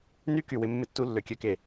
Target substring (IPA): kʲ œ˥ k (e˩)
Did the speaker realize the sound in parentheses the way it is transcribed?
yes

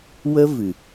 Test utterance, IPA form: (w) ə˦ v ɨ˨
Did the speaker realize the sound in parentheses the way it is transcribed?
yes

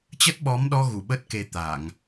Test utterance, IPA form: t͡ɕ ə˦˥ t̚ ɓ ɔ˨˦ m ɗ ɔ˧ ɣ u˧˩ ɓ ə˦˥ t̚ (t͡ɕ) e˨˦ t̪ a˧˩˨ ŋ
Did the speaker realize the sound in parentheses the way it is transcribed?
no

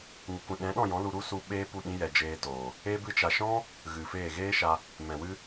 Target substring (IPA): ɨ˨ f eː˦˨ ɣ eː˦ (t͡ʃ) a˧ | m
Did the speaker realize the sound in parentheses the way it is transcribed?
no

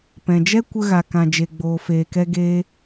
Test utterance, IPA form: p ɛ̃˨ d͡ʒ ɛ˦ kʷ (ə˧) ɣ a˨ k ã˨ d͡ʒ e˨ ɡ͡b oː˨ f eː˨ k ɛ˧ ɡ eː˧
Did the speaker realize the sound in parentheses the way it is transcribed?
yes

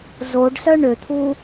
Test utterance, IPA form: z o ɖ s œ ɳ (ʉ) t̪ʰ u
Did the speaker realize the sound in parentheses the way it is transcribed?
no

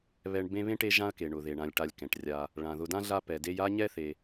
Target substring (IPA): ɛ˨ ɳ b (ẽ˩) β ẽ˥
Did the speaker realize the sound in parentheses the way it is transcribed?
no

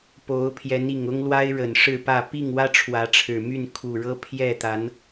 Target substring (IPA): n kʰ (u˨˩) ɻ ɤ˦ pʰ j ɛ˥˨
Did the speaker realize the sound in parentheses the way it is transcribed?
yes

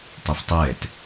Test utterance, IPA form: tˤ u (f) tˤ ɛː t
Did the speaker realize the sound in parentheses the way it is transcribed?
yes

